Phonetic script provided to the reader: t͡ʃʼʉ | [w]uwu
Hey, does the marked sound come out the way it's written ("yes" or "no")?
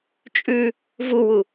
no